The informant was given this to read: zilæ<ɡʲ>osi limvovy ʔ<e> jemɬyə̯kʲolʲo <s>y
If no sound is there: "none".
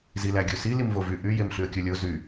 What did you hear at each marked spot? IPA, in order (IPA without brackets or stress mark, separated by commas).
ɡʲ, y, z